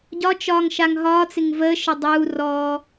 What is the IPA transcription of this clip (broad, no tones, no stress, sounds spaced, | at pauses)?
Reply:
ɟ ɒ t͡ʃ ɒː ŋ ʃ a ŋ ɦ ɒː t͡s ɪ ŋ v əː ʃ ə dˤ uː r ɔː